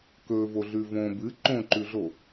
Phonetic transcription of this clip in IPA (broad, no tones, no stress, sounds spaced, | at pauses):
k ɵ v o ɮ ʉ v õ b ɨ ǃ õ ǃ ʉ ɮ o